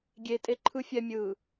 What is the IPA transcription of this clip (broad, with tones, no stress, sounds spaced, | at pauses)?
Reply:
ɡʲ e˨ tʼ e˨ ǃʰ ɯ˨ fʲ ɛ˨ mʲ ɯ˨